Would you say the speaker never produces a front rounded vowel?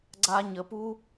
yes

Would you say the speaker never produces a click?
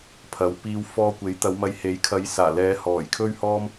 yes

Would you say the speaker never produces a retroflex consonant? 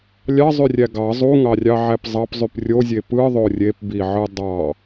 yes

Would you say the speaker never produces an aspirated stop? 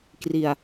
yes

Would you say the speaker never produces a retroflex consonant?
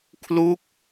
yes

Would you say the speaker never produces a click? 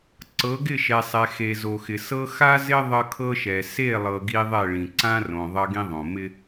no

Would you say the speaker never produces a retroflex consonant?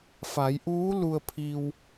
yes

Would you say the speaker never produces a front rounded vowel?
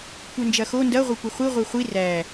no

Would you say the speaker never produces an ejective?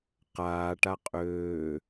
no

